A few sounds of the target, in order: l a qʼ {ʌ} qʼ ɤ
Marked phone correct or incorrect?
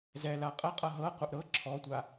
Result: incorrect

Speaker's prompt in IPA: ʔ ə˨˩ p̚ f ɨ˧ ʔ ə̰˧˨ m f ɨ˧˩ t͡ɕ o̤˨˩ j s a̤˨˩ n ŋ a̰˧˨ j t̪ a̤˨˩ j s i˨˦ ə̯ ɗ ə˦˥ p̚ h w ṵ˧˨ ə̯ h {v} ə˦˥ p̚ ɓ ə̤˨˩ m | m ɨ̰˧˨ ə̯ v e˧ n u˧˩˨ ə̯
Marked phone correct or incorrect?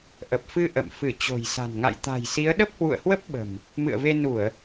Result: incorrect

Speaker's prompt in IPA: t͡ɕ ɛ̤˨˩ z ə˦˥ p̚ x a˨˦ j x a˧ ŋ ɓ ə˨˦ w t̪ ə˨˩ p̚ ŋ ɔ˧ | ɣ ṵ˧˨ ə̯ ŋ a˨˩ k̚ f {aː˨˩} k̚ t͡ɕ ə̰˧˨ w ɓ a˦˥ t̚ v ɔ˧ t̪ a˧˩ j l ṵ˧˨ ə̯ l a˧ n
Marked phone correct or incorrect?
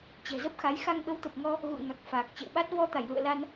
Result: correct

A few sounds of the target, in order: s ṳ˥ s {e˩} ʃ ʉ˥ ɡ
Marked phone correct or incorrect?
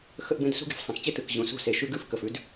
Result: correct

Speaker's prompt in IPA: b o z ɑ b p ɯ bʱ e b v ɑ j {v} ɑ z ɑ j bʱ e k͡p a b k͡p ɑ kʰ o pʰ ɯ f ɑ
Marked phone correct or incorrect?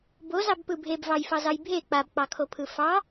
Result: incorrect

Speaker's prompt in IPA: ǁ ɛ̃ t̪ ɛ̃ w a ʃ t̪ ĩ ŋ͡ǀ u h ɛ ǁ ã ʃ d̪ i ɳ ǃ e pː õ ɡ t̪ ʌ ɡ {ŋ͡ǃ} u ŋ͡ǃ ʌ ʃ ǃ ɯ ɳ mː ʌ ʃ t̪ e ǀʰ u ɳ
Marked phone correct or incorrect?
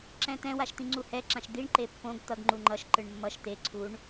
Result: correct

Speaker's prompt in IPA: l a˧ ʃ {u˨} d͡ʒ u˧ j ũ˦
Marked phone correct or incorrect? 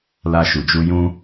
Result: correct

